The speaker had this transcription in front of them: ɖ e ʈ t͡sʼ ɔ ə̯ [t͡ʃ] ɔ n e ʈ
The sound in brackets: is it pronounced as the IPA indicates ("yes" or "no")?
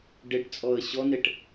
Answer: no